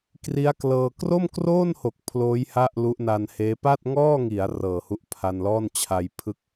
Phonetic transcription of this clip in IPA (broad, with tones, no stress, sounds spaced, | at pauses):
k r i˦˥ a̯ k l ɤː˧ k r o˥˩ m k r oː˥˩ n h o˨˩ k̚ pʰ l oː˦˥ j h a˥˩ ʔ l u˦˥ ʔ n a˧ n h eː˦˥ p a˥˩ t̚ ŋ ɔː˥˩ ŋ i˩˦ a̯ r ɤː˨˩ h u˦˥ ʔ pʰ a˧ n l ɔː˥˩ n t͡ɕʰ a˧ j pʰ ɯ˥˩ k̚